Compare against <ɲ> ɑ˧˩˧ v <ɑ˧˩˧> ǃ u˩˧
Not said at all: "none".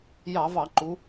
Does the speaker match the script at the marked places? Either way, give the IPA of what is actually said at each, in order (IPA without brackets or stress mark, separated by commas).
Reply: j, ɑ˧˩˧